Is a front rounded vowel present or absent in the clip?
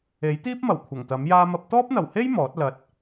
absent